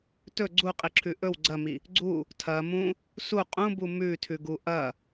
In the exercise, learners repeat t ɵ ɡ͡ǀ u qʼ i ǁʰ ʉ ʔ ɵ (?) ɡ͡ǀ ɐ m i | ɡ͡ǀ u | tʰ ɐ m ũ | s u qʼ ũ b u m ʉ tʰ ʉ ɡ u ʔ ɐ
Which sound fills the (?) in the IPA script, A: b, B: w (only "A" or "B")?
B